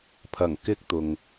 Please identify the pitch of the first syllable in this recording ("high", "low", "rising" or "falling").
low